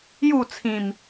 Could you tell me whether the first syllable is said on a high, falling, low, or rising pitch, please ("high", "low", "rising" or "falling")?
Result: falling